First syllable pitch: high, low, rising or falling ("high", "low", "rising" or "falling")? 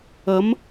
rising